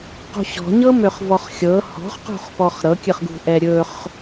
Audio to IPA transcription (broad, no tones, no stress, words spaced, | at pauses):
qṳɕɔ̤ɲɤ møχvɔχxʲɤ hɔ̤χqṳχpɔχ ɾɤkʲɨχɡṳ ʔɛɾʲɵχ